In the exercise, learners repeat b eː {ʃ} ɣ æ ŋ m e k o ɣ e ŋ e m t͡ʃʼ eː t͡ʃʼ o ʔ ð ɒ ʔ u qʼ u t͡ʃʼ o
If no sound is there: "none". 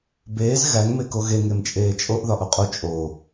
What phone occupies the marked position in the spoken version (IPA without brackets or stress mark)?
z